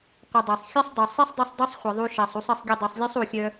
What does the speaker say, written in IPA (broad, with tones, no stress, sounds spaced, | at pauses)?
qʷ ə˨ dˤ ɜ˨ sˤ xʲ œ˦ sˤ dˤ o˨ sˤ e˦ sˤ dˤ œ˧ sˤ dˤ u˦ sˤ χʷ ə˨ ðˤ u˧ ʃ ɜ˨ sˤ u˧ sˤ ə˦˨ sˤ ɡʲ ə˦˨ dˤ u˨ sˤ lʲ œ˦ sˤ u˨ xʲ œ˧